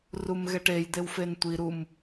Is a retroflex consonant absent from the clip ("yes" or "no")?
no